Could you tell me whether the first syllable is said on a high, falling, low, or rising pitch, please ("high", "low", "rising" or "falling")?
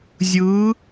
rising